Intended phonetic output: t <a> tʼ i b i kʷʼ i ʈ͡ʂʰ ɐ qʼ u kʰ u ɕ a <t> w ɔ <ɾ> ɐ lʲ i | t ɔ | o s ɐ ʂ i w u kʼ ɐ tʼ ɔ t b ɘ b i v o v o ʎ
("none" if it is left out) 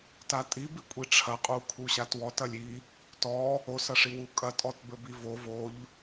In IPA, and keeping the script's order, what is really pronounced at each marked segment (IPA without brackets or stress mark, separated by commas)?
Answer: a, t, t